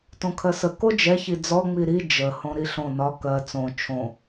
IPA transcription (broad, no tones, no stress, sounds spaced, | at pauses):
t õ kʰ ɜ s ə k o d͡ʒ ɛ ç i d͡z ɔ ŋ͡m i ɾ i d͡ʒ ə h õ ɾ i ɬ õ n ɒ k ɜ t͡s õ t͡ʃʰ õ